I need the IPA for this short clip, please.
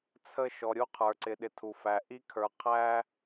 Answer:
t͡sʰə˦˨ ʃɔ˨ɾʲu˦qʰə˞˨ ǀɪ˨ɗɪ˨ tʰu˨fæ˨ ʔi˦kʰə˞˨ qʰæ˦

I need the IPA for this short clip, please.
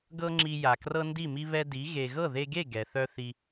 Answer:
ɡɤ˦ŋ͡ǁi˧ja˨ krɤ˦ndi˦˨mi˦ βɛ˦di˨˦ ɣe˨ɣɤ˦˨ðe˧ɡe˦˨ ɡɛ˨θœ˦θi˧

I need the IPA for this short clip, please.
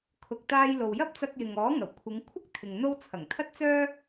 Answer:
kʰʊ˨k̚t̪aː˧jlo˨w jɐ˥p̚t͡sɐ˧k̚ jɪ˨ŋ ɔː˨˥ ŋɐ˨˩wkʷʰɪ˨˧ŋ kʷʰɐ˥k̚t̪ʰɪ˨ŋ n̪o˧wt͡sʰɐ˨˩ŋ t̪ʰɐ˧t̚t͡sœː˧

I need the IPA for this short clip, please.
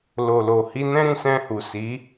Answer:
lo˨lo˨hi˧nɛ̃˦ ɾĩ˧sɛ̃˧hu˨ si˨˦

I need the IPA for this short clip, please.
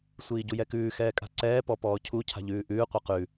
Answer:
sʷiːɟujɛkʉː xɛːkʼa̤ǀɛː pɔpɔːcʰu cʰa̤ʎʉːʔʉː qʷɯqʉ

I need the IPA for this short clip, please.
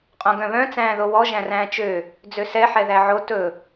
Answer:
qʼõɡœ̃βœ̃ t͡sæ̃ːðowɔ ʒæ̃ræ̃ːt͡ʃø | d͡zøsɛ ħɛðæʕo tɵ

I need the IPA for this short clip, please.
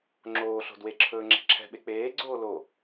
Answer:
ŋ͡ǁoːɬo̤ dweǁʰɵːŋ͡ǁɛ̤ ǁʰɛ̤ɓe k͡peːɡ͡ǀoː lo

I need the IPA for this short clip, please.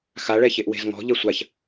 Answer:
xa ɭɛçeʔwe̤zŋɔ̤ ʎɛsʷaç

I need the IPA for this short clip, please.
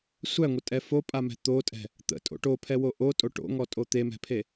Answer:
sʷæŋʷətʼɛ fopʼamɛ̤ t̪otʼɛ̤ | t̪ə̰tʼo̰ ʈopʰɛwo ʔotʼo ʈo̰ŋɔtʼo t̪emɛ̤pʰe

